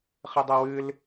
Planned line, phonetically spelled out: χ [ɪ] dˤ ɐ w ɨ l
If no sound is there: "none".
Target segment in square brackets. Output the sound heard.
ɨ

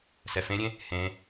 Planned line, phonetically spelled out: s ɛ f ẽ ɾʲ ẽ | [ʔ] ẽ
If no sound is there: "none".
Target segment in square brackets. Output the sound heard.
h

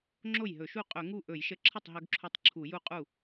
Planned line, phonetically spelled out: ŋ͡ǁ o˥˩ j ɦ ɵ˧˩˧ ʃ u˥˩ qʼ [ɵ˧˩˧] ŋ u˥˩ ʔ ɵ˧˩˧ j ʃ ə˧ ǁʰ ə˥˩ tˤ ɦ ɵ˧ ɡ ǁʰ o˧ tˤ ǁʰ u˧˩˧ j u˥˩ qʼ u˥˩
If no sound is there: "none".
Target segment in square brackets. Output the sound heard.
ɵ˧˩˧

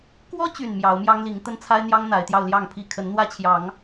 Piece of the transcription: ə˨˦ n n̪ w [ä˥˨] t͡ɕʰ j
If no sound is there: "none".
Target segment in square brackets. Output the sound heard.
ä˦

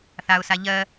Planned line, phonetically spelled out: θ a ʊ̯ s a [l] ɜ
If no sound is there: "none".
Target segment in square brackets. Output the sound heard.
ʎ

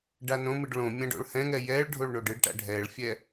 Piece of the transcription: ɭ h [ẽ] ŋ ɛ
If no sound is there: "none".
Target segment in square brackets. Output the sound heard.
ɛ̃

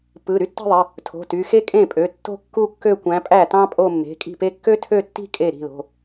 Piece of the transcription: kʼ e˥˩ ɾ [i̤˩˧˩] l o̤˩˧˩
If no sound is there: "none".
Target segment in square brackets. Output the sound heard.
i̤˩˧˩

